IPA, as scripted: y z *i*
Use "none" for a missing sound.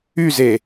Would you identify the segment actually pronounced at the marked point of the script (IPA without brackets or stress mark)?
e